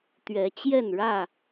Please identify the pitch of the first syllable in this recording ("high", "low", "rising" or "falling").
rising